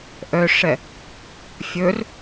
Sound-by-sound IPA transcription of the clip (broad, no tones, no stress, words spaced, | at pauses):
ʔœʂɛ | fʲɵr